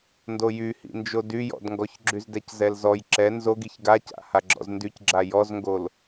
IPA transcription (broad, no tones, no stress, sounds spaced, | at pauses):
n d o j y h ḭ n d͡ʒ o d y j ɔ̰ d ŋ ɡ ɔ ç ɡ͡ǁ y z d ɛ c z ɛ l z ɔ j ǁ ɛ n z o ɡ i ç ɡ a c a̰ h a ɡ͡ǁ ɔ̰ z n d y c ɡ͡ǁ a j ɔ z ŋ ɡ o l